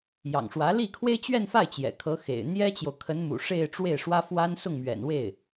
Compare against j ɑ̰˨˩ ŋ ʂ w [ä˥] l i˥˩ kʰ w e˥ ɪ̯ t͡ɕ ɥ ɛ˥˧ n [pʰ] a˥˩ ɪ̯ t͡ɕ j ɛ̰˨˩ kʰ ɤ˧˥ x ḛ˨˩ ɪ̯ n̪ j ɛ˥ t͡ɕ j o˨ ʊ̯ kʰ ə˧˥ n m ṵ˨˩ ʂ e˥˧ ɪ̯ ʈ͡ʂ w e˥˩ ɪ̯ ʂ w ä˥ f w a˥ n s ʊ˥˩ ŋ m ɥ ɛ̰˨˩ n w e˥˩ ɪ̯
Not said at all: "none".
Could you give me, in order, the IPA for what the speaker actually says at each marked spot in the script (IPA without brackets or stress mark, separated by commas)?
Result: ä˧˥, f